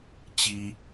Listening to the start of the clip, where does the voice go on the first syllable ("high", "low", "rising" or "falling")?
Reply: high